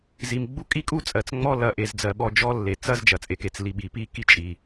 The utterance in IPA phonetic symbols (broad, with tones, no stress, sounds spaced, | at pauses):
z i˨ m ɡ͡b u˦ kʼ i˦ kʼ u˦ t͡sʼ ɜ˨ t͡s ŋ͡m ɔ˦ l ɐ˨ ʔ e˨ z d͡z ɜ˨ ɓ ɔ˦˨ d͡ʒ ɔ˦ lː e˨ t͡s ɐ˦ z d͡ʒ ɐ˨ t͡sʼ e˨ k e˨ t͡s l i˨ ɓ i˨ p i˦ k i˦ t͡ʃʼ i˨